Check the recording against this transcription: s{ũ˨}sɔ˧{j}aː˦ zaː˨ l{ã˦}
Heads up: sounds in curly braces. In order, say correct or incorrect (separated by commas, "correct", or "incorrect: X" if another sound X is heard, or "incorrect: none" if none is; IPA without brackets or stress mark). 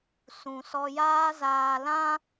correct, correct, correct